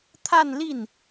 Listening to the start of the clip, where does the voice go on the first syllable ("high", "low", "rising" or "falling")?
falling